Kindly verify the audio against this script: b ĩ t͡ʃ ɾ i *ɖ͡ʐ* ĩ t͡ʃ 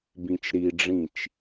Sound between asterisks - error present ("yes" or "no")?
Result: no